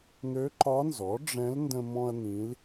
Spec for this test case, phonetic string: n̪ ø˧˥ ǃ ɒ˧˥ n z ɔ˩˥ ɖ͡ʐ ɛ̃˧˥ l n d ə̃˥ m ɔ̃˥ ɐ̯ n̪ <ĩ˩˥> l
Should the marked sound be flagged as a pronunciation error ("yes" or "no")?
yes